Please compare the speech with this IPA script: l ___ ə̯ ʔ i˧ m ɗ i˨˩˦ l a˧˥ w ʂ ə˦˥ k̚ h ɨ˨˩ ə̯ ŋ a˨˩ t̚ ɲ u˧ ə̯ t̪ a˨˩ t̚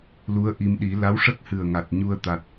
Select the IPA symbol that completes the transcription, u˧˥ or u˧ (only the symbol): u˧˥